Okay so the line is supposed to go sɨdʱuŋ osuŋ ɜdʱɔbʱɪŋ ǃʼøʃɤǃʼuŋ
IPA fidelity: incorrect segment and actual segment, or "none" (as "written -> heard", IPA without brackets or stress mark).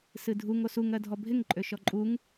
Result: ɤ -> ɔ